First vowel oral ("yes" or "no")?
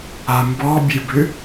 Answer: yes